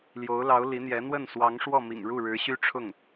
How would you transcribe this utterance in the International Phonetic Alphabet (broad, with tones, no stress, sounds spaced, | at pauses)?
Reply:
l j o˧˥ ʊ̯ l ɑ˧˥ ʊ̯ l i˧˥ n̪ j ɛ˧˥ n̪ w ə˥˩ n s w ɑ˧˥ ŋ ʂ w ɔ˥˩ m ḭ˨˩ ŋ ɻ u˥˩ ɻ ɻ̩˧˥ ɕ y˥ ʈ͡ʂʰ ʊ˥˩ ŋ